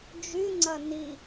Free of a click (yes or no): no